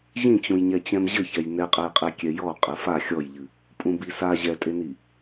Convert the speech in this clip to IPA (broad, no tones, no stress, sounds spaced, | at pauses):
ʑ ĩ t͡ɕ ũ j ɲ ɛ t͡ɕ ɛ̃ m ʑ ɘ ç ɛ j n ɛ qʼ ɛ j qʼ e kʲ ɛ j ɔ qʼ ɘ f a xʲ ɔ j ʎ ɨ | pʼ ũ b i s a ʑ ɛ tʼ e n i